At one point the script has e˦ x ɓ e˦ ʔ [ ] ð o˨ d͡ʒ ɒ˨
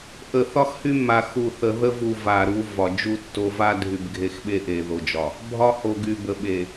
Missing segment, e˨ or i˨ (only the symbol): e˨